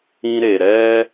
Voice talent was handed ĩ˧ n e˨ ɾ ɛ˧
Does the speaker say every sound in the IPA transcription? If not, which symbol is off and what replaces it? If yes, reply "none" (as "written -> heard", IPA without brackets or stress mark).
n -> ɾ